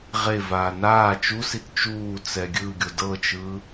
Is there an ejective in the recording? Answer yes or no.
no